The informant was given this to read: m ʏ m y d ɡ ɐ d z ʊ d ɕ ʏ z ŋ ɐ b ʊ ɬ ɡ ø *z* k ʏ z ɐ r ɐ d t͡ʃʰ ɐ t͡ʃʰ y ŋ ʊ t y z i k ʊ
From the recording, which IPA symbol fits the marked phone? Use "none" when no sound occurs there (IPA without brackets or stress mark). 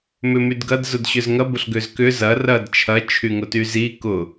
z